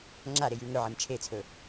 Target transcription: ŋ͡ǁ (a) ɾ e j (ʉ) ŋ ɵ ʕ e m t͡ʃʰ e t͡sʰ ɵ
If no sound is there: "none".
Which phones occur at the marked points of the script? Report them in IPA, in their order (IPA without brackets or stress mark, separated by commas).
a, ʉ